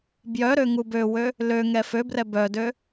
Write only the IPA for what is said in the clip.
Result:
b j œ ɾ ø ŋ u b ø w ø | l ø ŋ ɛ f ø b r ɛ b œ d ø

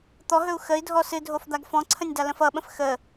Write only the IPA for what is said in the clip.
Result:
t̪ ɔ ɦ ɵ u̯ x ə i̯ dʱ ɔ s ɨ dʱ o f d̪ a ɡ f ɔ̃ ǀʰ ə̃ nʲ d a l ə̃ f ʌ ɓ ə̃ f x ə

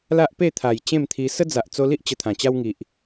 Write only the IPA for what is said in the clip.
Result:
l a˦ ʔ p e˥˧ t̪ʰ a˨˩ j t͡ɕ ẽ˥˧ m t̪ʰ i˧ s ə˦ d͡z a˨ ʔ t͡s o˧ l i˦ ʔ t͡ɕ ə˧ t̪ʰ ã˨˩ t͡ɕ a˦ w ŋ i˨ ʔ

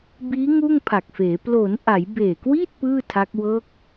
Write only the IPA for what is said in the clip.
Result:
b iː˦˥ ŋ uː˥˩ ŋ pʰ a˨˩ k̚ f eː˩˦ p l o˩˦ n ʔ a˩˦ j b eː˨˩ k w iː˥˩ t̚ p ɯː˥˩ tʰ a˦˥ k̚ w ɤː˦˥ k̚

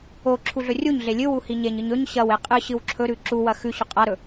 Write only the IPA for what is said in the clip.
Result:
o ǁʰ u ɮ ɵ rʲ u ɲ ɮ e lʲ ɨ w u h i ɲ e ɲ ɨ ɲ ɵ ɲ ɕ ɐ w e qʼ ɨ ɕ ɨ w ǁʰ ɵ ɾ ʉ ǁ u w ɐ x ʉ ɕ ɵ qʼ a ɾ ɵ

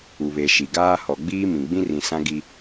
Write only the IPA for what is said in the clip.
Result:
u˨ β e˨ ʃ i˨ ɡ aː˦ h ɔ˨ ɡ͡b iː˦ m ĩ˨ ɡ͡b ĩ˦ r ĩ˨ s ã˦ ɡ i˨

